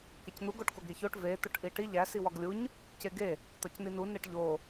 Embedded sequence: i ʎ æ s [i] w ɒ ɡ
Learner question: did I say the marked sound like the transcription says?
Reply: yes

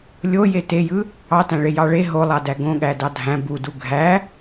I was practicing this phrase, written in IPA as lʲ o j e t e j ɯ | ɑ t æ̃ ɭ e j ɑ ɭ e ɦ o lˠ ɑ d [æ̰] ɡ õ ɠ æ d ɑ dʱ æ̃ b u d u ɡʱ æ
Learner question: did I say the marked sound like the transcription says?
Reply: no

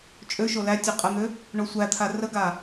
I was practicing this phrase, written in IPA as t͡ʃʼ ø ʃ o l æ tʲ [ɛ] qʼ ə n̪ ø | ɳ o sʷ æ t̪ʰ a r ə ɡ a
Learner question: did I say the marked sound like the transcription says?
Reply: no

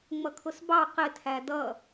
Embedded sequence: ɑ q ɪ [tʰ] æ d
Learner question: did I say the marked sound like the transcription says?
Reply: yes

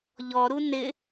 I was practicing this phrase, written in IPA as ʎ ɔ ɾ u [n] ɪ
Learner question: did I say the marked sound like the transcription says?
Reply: yes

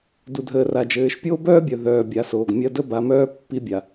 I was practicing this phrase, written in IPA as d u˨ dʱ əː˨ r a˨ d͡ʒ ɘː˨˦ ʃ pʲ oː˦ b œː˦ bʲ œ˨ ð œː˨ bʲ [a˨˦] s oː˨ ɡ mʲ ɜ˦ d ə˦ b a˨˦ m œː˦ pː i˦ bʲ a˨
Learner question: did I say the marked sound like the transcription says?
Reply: yes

